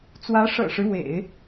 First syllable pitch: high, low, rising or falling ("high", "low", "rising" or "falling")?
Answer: rising